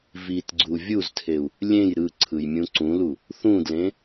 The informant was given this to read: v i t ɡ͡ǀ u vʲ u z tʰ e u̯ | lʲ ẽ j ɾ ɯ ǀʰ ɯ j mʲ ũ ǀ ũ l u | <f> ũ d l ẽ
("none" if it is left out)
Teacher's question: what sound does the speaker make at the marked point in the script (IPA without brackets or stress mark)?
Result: θ